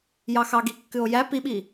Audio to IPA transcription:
j ɑ x ɑ ɡ i kː ɨ o̯ j æ p i ɓ i

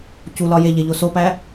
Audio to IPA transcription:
c u l ɒ j e ʎ e ʎ o s o p æ

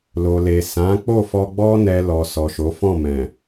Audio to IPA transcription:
l o˨ l e˨ s ã˨˦ k͡p o˦˨ f ɔ˧ ɡ͡b ɔ˦ n ɛ˧ l ɔ˨ s ɔ˨ ʃ o˨˦ f ɔ̃˦˨ m ɛ̃˨

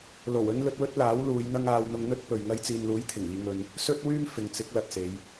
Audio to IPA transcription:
l o˨˩ w ɵ˥ n l ɵ˧ t̚ w ɵ˥ t̚ l aː˨˥ w l uː˨˧ j n̪ ɐ˥ ŋ aː˧ w n̪ ʊ˧ ŋ n̪ ɵ˥ t̚ p ɵ˨ ɥ ŋ ɐ˧ j t͡s iː˨ n l uː˨˥ j t̪ʰ ɪ˨˩ ŋ iː˧ ŋ ɵ˧ n | s ɵ˥ t̚ w yː˥ m f ɪ˨˧ ŋ t͡s ɪ˨˥ k̚ l ɐ˨ t̚ s e˨˧ j

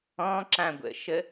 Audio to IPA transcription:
ɔ̃ ǁ ã ɡʷ ə̰ ʃ ə

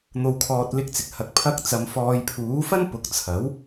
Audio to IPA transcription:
n̪ o˨ w kʰ ɔː˨ t̚ l ɪ˧ k̚ t͡s ɪ˨ k̚ h ɐ˨ k̚ pʰ ɐ˧ k̚ t͡s ɐ˨˧ m f ɔː˨ j pʰ uː˨˥ f ɐ˥ n p ʊ˨ k̚ t͡sʰ ɐ˨˥ w

